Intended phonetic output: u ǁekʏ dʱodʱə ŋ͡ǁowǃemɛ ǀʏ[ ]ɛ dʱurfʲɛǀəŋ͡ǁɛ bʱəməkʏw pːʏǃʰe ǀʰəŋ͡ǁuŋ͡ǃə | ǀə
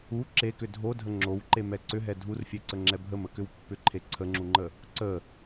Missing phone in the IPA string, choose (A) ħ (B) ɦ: B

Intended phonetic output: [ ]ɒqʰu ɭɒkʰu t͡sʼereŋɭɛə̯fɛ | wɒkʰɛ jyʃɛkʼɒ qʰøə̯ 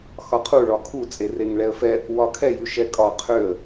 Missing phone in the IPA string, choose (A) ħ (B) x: B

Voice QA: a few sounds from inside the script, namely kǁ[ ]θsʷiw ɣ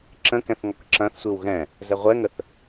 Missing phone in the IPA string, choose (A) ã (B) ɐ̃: B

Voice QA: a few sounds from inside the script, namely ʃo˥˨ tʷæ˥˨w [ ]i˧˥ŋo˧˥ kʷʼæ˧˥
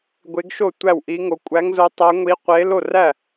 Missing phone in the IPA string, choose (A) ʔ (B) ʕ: A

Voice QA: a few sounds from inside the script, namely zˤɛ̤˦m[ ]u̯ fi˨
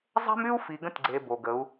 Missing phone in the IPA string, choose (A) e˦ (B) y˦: B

